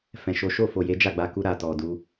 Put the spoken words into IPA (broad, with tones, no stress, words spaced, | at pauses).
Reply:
fɛ̃˨ʃo˨˦ ʃo˦˨fo˨je˨˦ d͡ʒa˦˨ɡ͡ba˨˦ku˧ ɾa˨tɔ˨ du˧